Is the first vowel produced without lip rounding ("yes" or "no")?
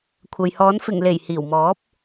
yes